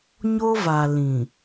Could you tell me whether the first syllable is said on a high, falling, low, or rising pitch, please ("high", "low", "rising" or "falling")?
high